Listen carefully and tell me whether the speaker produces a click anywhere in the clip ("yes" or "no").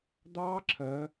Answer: yes